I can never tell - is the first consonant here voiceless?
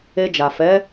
no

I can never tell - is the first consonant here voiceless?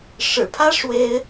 yes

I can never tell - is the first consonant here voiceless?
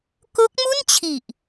yes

